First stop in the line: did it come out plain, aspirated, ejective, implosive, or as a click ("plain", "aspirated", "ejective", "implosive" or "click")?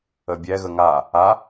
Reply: plain